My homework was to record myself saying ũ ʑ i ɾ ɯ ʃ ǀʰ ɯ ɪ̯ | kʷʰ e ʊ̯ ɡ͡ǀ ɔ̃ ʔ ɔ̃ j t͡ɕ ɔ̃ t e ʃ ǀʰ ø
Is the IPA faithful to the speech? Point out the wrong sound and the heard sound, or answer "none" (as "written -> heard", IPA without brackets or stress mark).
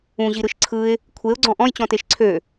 none